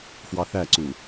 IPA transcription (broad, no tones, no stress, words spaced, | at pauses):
fwɑθæǀu